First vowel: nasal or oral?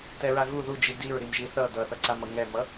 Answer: oral